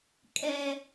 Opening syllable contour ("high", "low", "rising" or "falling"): high